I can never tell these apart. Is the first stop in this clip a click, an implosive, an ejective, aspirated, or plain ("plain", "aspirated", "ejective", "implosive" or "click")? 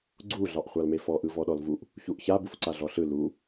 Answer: click